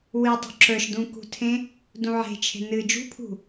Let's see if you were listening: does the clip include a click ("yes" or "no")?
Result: yes